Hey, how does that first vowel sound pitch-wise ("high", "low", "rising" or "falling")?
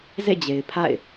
falling